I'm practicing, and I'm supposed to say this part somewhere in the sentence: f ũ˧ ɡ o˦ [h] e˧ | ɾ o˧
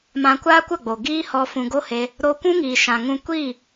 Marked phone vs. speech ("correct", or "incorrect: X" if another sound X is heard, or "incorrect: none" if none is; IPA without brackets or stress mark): correct